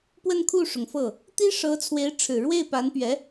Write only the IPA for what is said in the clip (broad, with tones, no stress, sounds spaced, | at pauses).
p w ə˥˧ n kʰ u˥˩ ʂ ʊ˩ ŋ f ɤ˥˩ | t̪ i˥ ʂ ɤ˧˥ t͡sʰ w e˧˥ ɪ̯ ʈ͡ʂʰ ɻ̩˨˩ ɻ w e˥˩ ɪ̯ p a˧˥ n p ɥ ɛ˧˥